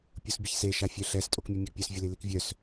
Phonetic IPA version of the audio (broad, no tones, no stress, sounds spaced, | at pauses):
pʲ o s bʲ ə ç s e ʃ a fʲ œ ɬ ɛ s tʼ o k mʲ ɛ mʲ ɛ ɡ pʲ œ s vʲ ə l i l i k vʲ œ s